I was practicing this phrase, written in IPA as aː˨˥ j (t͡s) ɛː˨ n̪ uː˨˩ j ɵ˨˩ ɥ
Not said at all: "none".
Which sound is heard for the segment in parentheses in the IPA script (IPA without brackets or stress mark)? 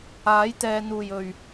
t̪